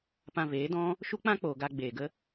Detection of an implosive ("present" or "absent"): absent